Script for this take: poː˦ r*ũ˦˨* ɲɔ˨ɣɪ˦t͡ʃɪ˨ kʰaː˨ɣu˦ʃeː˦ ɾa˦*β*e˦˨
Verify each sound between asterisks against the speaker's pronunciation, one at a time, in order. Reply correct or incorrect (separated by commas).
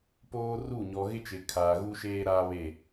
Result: incorrect, correct